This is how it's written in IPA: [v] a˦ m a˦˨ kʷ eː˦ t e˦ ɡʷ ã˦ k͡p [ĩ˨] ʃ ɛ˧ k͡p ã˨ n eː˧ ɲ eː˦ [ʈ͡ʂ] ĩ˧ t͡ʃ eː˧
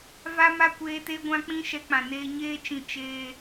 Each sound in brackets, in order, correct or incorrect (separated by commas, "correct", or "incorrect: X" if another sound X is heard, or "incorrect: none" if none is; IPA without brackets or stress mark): correct, incorrect: ĩ˦, incorrect: t͡ʃ